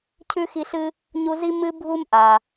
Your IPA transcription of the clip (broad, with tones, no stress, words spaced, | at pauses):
cʰʉ˥xi˦ɬɨ˥ | ɲu˦zi˥ mɨ˥bʱu˥mʔa˩